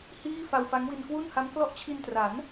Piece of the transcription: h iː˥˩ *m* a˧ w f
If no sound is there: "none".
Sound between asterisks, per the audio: f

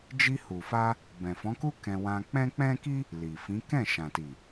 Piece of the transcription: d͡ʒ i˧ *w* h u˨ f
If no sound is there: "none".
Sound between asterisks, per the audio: none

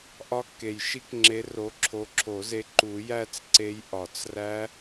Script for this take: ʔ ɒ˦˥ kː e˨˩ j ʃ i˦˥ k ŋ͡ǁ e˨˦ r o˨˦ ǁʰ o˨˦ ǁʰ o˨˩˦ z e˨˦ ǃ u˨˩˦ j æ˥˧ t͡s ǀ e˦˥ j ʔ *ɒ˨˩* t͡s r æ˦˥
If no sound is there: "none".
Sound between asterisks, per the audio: ɒ˨˩˦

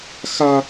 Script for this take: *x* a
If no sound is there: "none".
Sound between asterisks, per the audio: x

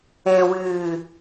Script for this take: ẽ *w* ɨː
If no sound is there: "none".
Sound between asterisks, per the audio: w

